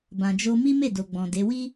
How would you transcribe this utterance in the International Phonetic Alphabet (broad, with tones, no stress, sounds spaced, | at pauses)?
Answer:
b ã˨ d͡ʒ o˧ m i˦ m e˦˨ d o˨ ɡ͡b ɔ̃˨ d e˨˦ w i˦